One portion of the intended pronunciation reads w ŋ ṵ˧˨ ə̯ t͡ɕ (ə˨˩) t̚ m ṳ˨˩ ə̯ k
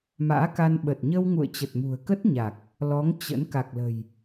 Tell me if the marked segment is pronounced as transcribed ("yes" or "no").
yes